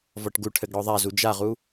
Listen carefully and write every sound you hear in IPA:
vɔʈɡuʈʰɘɡ ɽɔðˤazu d͡ʒaʁu

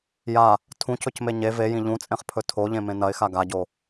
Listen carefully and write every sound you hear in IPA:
ja | tʰũcɵcme ɲe vejĩ ʎũt͡sʼẽχpʰɵ tʰoʎẽmẽ nɐɪ̯xa ɡaɟo

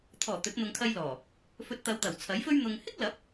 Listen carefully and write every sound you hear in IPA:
t̪ʰɔː˨˩ t̪ɵ˨˥t̚n̪ʊ˧ŋ kʰɐ˧jlɔː˨˩ | fɵ˧t̚t̪ɐ˨˧wt̪ɐ˨˩w t͡sʰɐ˨˥jfɵ˥ɥn̪ʊ˧ŋ hɪ˥k̚lɐ˨˥p̚

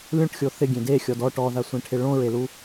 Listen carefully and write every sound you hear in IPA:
lʲõʈxʲo θɪɡʲẽ dexʲɔd ɔ ʈɔðasʷẽʈʰɪ ɭõɹelu

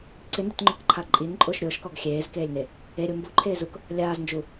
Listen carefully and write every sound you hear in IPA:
ǀɪndʊtŋ͡ǃʊkǃʰa ǃʼinǃʼʊːʃ ɾʲʊːʃkɔɡ xʲeːzkeːlʲne | eɾʲʊ mbuǃʰeːzuk | lʲaːznd͡ʒu

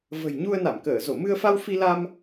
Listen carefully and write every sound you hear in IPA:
və̤˨˩j ɲu˧ə̯na˧˩mkəː˧˩ zo˧˩mɨ˧ə̯fa˧w fi˧la˧m

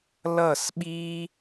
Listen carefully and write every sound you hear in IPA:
lʌ˦˨sɓi˦

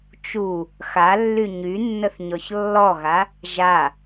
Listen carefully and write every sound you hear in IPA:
t͡ʃu | xalːy ɲynːəθɲɔç lːɔɣa | ʒa

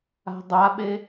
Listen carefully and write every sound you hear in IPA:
a̤dˤaɓe

